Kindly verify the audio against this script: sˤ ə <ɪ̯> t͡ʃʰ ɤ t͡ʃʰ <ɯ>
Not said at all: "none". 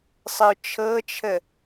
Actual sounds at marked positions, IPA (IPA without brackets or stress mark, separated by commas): ʊ̯, ə